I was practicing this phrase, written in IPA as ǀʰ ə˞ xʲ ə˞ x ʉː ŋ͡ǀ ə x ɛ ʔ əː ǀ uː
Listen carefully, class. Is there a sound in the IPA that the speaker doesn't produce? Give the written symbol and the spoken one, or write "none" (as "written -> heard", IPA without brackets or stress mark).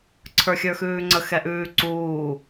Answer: əː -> ʉː